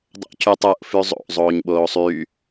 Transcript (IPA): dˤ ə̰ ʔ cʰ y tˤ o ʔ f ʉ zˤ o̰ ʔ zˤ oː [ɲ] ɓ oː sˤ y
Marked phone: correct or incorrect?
correct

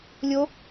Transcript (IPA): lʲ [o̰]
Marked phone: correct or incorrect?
incorrect: o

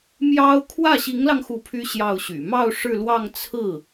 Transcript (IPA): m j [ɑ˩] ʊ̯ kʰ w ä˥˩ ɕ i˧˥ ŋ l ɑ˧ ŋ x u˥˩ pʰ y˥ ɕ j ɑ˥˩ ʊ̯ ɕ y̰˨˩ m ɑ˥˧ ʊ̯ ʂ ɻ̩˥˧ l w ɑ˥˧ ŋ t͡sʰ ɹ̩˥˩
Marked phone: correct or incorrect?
incorrect: ɑ˥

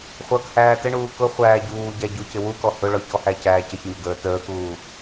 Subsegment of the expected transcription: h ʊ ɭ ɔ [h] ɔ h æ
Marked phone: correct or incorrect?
incorrect: ç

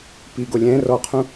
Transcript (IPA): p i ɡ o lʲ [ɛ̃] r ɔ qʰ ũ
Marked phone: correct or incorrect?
correct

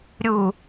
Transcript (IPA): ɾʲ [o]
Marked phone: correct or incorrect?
incorrect: u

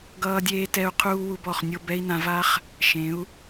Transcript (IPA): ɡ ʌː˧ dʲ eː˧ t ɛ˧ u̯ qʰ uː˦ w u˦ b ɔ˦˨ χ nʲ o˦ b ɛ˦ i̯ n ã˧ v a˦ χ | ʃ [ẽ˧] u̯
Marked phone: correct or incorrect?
incorrect: ẽ˨˦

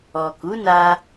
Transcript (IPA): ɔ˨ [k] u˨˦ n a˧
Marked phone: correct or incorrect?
correct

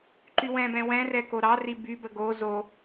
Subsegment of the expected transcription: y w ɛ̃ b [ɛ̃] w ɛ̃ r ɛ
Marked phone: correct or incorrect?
correct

